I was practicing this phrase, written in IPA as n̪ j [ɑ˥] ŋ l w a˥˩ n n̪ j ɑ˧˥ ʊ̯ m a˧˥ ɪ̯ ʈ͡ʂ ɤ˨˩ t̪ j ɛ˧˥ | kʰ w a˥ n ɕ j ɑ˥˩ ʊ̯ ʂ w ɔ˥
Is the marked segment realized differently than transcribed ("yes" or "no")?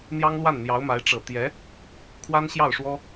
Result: no